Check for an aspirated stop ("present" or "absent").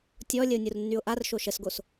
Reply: absent